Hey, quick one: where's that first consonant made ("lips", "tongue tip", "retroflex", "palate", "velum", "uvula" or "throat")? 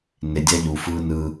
tongue tip